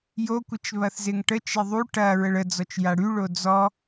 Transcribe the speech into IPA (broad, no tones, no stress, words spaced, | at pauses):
jokʷɪt͡ʃ βɐθzɪŋʈət͡ʃe ðˤu ʈɐ ɹəɭəd͡zɔt͡ʃ jaɽyɭo d͡zɔ